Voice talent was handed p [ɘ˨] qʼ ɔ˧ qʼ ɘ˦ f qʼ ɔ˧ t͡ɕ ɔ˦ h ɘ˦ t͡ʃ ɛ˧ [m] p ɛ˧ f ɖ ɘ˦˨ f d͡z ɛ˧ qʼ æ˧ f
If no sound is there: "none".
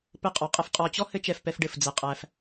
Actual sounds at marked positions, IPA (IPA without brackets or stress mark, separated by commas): ɘ˦, f